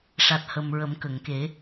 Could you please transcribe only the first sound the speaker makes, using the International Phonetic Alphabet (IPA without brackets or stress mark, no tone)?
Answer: ʂ